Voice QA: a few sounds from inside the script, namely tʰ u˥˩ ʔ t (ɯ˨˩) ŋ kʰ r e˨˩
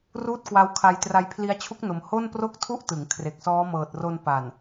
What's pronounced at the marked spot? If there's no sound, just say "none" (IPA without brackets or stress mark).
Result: ɯ˩˦